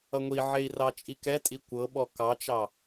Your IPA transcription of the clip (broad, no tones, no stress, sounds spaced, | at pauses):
ʌ ŋʷ i ʕ e i̯ r ɑ t͡ʃʼ i k ɛ tʼ i kʷ ɤ ɓ ɔ k ɑ t͡ʃ ɑ